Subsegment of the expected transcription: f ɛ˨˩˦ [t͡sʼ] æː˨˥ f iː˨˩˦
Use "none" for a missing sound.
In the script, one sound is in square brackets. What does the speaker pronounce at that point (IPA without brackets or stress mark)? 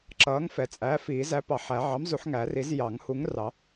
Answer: t͡sʼ